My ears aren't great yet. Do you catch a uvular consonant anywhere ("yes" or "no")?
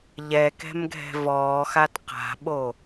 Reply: yes